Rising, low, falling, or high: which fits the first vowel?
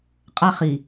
high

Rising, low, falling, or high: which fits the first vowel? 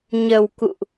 low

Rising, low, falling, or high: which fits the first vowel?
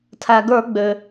low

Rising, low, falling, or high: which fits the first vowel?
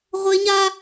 high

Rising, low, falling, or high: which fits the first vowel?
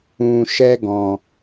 low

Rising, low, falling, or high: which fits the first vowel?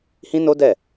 high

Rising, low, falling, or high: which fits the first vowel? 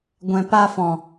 low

